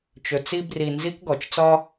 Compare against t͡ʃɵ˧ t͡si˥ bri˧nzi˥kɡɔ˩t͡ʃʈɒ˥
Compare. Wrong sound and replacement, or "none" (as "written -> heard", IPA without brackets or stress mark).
ʈ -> t͡s